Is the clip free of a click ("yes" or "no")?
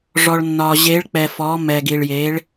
yes